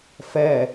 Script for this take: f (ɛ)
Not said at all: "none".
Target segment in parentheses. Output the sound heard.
ɛ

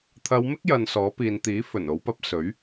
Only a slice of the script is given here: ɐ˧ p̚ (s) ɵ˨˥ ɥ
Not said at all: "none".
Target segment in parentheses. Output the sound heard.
s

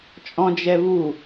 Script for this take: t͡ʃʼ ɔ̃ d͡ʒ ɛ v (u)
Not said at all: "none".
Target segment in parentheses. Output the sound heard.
u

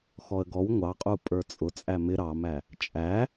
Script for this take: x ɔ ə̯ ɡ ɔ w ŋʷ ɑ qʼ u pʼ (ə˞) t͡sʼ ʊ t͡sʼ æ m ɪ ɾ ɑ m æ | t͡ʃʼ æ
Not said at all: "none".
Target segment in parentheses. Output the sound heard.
ə˞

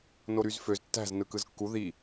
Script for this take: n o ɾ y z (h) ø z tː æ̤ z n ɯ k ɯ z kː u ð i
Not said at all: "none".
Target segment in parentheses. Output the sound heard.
f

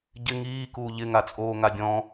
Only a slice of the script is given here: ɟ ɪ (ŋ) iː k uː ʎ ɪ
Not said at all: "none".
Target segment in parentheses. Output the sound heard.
ŋ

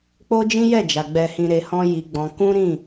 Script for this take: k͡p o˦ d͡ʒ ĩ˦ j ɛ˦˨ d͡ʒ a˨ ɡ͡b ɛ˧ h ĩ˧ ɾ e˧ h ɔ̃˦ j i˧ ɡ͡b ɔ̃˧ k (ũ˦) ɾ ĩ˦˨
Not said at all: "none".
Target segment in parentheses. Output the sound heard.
ũ˦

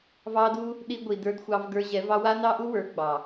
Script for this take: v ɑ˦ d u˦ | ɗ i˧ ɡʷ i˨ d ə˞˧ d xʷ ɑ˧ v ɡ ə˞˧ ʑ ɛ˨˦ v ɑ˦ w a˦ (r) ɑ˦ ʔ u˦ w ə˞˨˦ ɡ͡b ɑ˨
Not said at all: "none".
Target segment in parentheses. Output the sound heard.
n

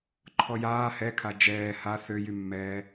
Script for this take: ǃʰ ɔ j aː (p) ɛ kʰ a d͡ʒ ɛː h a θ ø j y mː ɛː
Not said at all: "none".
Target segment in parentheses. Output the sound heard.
h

